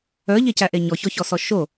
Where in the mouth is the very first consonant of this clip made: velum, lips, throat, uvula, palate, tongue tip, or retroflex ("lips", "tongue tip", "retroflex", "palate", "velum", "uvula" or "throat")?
palate